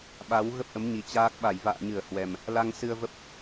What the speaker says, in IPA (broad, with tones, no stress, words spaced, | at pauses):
ɓa˨˦w ɣə˦˥p̚ʔə˨˦mɲi˨˩ t͡ɕaː˦˥k̚ ɓa˧˩jva̰ː˧˨ ɲɨ˧˩ə̯hwɛ˨˩m | la˧ŋsɨ˧ə̯və˦˥p̚